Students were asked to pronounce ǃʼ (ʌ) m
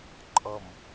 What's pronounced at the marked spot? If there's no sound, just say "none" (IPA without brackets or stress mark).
ʌ